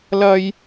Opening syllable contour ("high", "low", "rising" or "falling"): high